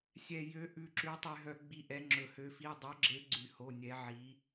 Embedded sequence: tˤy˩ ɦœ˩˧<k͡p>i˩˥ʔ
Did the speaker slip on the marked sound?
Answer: yes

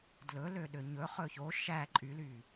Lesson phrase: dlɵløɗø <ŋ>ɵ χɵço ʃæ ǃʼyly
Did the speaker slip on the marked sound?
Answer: yes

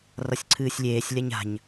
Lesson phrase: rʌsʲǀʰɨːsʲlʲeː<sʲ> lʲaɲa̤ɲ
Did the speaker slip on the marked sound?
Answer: no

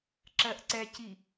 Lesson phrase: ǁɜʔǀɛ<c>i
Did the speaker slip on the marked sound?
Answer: no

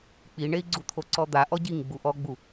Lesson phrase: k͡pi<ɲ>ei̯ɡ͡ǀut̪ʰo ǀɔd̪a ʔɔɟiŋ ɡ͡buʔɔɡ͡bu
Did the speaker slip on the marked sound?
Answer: yes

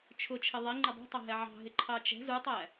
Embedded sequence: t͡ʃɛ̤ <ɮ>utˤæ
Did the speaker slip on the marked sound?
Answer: yes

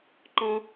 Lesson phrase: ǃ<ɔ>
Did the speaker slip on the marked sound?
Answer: yes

